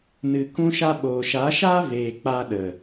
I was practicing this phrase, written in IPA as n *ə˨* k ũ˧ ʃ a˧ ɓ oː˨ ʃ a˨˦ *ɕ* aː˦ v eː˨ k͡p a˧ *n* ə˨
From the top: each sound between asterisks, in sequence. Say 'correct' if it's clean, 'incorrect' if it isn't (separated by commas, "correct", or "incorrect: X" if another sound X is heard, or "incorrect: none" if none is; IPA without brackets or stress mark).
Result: incorrect: ɨ˨, incorrect: ʃ, incorrect: ɗ